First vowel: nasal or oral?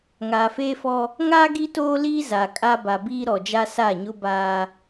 oral